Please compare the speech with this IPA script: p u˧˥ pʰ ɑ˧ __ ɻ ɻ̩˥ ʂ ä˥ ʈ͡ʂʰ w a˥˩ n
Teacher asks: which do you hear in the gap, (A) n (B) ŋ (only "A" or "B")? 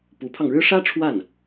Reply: B